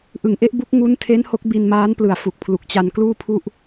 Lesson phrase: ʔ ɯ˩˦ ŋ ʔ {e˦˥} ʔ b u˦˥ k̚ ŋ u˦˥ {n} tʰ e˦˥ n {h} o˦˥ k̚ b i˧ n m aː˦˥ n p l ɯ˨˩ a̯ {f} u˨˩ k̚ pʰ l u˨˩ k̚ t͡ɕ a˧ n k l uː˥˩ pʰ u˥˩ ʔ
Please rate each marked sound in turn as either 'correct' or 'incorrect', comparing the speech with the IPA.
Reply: correct, correct, correct, correct

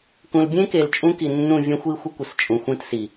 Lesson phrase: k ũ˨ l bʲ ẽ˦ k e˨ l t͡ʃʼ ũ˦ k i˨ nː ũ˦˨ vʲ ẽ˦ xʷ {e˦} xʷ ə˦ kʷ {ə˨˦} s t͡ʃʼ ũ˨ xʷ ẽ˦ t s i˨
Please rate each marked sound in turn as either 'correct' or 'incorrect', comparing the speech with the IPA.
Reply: incorrect: i˦, incorrect: ə˨

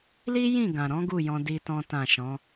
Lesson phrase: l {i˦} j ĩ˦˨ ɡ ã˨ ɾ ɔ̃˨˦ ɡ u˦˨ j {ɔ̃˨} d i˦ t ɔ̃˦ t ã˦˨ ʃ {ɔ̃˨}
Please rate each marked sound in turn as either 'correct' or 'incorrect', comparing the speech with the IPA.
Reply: correct, incorrect: ɔ̃˧, incorrect: ɔ̃˨˦

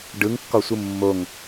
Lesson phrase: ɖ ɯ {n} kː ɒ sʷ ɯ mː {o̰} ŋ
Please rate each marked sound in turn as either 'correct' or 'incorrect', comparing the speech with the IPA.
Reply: incorrect: ŋ, incorrect: o

